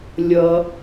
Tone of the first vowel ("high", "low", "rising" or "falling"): low